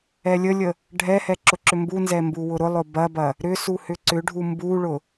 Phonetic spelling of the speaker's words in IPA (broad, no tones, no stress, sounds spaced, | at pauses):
ɛ lʲ ə lʲ ə | ɖʱ ɛ h ɛ ǁ ʊ ǁ ʏ m b u n z ɛ m b u w ʊ ɾ ʊ lˠ ʊ b ɐ b ɐ | ɾ ʏ s u h ʏ ǀ ʏ ɖʱ u m b u ɭ ʊ